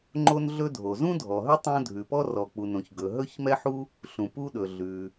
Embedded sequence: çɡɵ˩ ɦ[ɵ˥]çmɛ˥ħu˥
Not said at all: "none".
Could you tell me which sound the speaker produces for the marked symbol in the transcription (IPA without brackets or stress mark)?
ɵ˥